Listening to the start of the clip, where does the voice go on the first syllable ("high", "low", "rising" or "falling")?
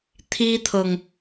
high